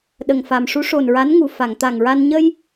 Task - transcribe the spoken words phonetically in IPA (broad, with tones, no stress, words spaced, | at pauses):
ɗə˨˩ŋfa˨˩m ʂu˧˥ʂo˨˩nɹa˧˥nŋu˨˩ fa˨˩˨ŋt̪a˨˩ŋɹa˧n ɲə˧j